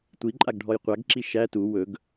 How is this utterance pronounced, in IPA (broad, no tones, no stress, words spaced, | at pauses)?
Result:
tʷiǃʼaɡ ɖʱɔjqʷaɡǁi ʃæ tu wɵɡ